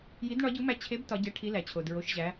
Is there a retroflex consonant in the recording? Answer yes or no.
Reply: yes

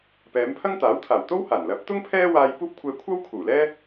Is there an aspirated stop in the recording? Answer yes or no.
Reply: yes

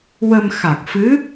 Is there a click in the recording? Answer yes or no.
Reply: no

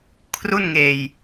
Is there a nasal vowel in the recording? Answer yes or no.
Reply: no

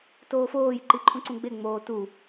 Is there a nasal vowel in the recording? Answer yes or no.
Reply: yes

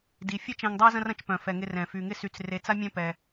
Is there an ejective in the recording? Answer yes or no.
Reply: no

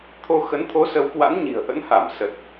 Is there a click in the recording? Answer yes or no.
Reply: no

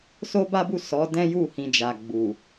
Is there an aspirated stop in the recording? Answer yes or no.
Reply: no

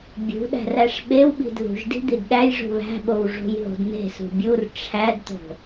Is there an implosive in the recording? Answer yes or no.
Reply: yes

